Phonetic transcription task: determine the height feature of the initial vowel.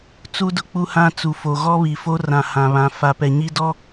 high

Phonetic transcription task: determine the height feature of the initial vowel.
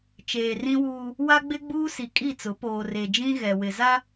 mid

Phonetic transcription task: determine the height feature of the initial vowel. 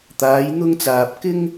low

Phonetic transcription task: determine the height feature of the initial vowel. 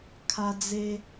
low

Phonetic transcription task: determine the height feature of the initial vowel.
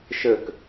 mid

